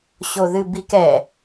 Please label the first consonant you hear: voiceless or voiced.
voiceless